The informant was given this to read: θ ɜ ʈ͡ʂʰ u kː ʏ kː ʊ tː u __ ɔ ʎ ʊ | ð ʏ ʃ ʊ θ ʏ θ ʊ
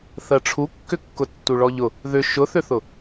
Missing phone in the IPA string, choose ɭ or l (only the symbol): ɭ